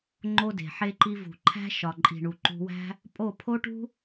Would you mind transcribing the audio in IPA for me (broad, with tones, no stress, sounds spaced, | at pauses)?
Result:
ŋ͡ǃ o˦ d e̤˨ ħ e˧ ǃ i˧ v ṳ˨ ǃʰ æ̤˦ ʃ ɒ˨ ǃʼ i̤˨ ɳ u˨ ǃ ṳ˧ w æ̤˦ | pʼ o˦˨ pʰ o˦ ʈ ṳ˦